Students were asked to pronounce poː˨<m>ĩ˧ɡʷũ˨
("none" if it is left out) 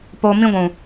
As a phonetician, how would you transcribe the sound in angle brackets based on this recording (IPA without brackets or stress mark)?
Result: m